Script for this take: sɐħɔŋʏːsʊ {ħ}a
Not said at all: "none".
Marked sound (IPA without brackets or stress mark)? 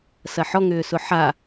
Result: ħ